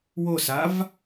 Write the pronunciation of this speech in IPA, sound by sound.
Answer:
w o s a v

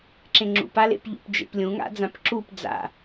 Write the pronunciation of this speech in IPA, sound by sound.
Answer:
ǁ ẽ ŋ͡ǁ ṵ p a l ḛ p ʎ ṵ p d͡ʒ ḛ p lʲ ũ ŋ a̰ d͡z ã p ǁ u p d͡z a̰

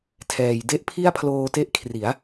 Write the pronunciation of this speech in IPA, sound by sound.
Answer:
tʰ ɛː˨˩ j d e˥˩ ʔ pʰ i˥˩ a̯ pʰ l oː˧ t e˦˥ ʔ kʰ r i˩˦ a̯

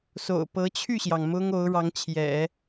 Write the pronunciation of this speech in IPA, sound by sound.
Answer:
s o̰˨˩ ʊ̯ p ɤ˧˥ t͡ɕʰ y˥˩ ɕ j ɑ˩ ŋ m ʊ˥ ŋ o˧˥ ʊ̯ ɻ ɑ˧˥ ŋ t͡ɕʰ j ɛ̰˨˩˦

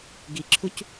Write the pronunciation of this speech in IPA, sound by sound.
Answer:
ɡ i ǁʰ u c

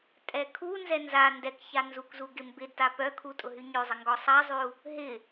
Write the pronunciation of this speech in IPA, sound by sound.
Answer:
tʼ ɛ kʰ u n z ɛ n z a n d ɛ k ç a n z u k z u ɡ ɪ m b ɪ d t a p œ kʰ u tʼ ʊ ɦ y ɲ ø zˤ ɪ ŋ ɡ ɔ sˤ a zˤ y u̯ | ɦ ɪ

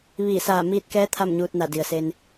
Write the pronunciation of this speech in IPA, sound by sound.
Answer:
ʋ iː˧˩ s aː˧˩ m iː˧ t̚ k ɛː˧˥ t̪ʰ a˥˨ m ɲ uː˧ t̚ n a˧˩ d i˩ ə̯ s e˧ n

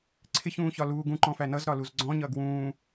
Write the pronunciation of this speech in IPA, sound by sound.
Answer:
ǀʰ ɪ ç ũː ç ɒ l uː ɡ ũ ǃ ɔ̃ f æ n ʌ z ɾ ɒ l u z ɡ͡ǀ ɔ̃ ɲ ʌː ɡ w ũː

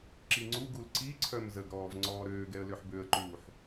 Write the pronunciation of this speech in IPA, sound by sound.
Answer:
ǁ i ŋ͡ǀ u ɡ u l ǀ i ǀʰ œ m z ə ɡ ɾ ɔː v ŋ͡ǀ ɔː ɾ øː ɡ ɛ ə̯ l ø ħ b ø ə̯ ǃ uː ħ

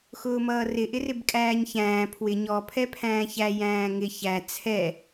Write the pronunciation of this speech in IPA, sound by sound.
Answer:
x ʊː m ʌː r ɪ ʔ ɪ r ɪ b kʼ æː ɲ ç æ̃ː pʰ w ɪ ɲ ɔ pʰ ɛ pʰ æ̃ː ç æ j æ̃ː ŋ ɪ ç æ t͡sʰ ɛ

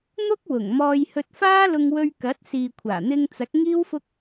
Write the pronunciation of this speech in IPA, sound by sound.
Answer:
n̪ ʊ˥ k̚ w ʊ˨˩ ŋ m ɔː˧ j h ɵ˧ t̚ f aː˥ l ʊ˧ ŋ w ɵ˧ ɥ k ɐ˨˥ t̚ s iː˨ kʷʰ aː˨˩ n̪ ɪ˧ ŋ t͡s ɐ˨˥ k̚ ŋ iː˥ w f ʊ˥ k̚

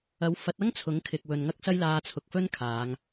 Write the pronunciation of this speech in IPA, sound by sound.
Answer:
ɐ˨˥ w f ɐ˨˥ t̚ ɐ˥ ŋ t͡sʰ ʊ˨˥ ŋ kʰ ɪ˨ k̚ w ɵ˨ n ŋ ɐ˥ k̚ s ɐ˥ j l aː˧ t͡sʰ ʊ˨ k̚ f ɵ˥ n kʰ aː˨˧ ŋ

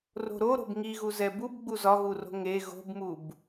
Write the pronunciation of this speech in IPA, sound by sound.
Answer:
r o̤ ɾ o ɾ o̤ b ŋ i ɣ u z ɛ b u b ɡ͡b u z ɒ ɣ u r o̤ ŋ e ɣ o̤ b m u b

